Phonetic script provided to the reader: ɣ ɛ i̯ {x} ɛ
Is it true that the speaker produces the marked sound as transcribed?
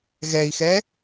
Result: yes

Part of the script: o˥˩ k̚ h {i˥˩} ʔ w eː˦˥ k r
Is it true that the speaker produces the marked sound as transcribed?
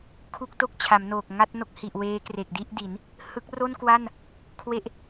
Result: no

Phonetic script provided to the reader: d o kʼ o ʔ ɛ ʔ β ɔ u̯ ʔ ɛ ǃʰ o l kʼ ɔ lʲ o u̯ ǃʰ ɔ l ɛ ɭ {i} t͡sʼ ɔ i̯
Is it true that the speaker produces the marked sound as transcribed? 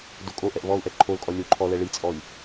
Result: yes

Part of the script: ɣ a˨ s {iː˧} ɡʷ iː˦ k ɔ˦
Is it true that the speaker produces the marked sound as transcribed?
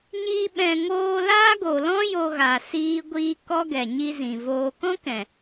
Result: no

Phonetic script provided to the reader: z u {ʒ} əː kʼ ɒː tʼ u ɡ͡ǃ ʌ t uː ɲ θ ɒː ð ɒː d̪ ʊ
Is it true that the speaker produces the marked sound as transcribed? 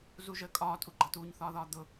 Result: yes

